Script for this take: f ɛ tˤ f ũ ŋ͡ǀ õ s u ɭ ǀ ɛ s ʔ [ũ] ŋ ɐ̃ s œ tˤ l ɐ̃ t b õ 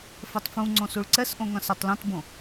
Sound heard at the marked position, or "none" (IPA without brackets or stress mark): õ